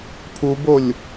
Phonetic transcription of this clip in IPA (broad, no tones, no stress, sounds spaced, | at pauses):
pʰ u b o lʲ